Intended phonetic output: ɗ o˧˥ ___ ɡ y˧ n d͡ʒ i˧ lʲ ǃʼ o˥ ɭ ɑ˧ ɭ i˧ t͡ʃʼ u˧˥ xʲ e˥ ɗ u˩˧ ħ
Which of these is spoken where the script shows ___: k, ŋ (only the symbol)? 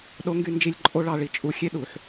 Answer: ŋ